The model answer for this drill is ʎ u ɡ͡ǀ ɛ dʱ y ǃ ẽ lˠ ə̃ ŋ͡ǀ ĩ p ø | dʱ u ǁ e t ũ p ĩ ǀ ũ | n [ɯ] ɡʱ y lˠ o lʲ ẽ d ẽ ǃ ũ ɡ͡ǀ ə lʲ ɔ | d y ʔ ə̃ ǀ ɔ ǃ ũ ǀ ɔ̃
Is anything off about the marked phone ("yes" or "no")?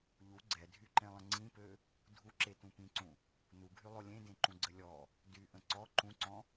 yes